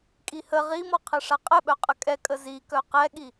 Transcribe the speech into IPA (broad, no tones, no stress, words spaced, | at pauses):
kʼihə ʁimɔqʰɘʂa qʼɘɓœqʼə kʼɛkʼə zikœ qɛɠi